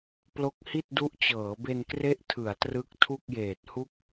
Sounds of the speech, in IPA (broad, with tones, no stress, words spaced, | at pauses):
plo˦˥k̚hi˥˩t̚du˦˥ʔt͡ɕɤː˩˦ be˧nkre˦˥ʔtʰɯ˩˦a̯ trɯ˦˥k̚tʰu˥˩k̚jeː˨˩t̚hu˥˩k̚